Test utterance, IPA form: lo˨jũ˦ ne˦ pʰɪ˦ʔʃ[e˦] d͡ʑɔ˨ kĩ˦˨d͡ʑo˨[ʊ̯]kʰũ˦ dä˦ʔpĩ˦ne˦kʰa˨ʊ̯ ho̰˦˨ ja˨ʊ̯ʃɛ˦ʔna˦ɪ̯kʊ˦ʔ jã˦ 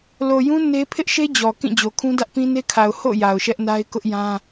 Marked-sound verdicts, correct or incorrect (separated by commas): correct, incorrect